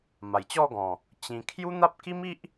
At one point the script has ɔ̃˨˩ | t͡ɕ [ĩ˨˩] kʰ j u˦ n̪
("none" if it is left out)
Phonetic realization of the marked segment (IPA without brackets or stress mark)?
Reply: ĩ˧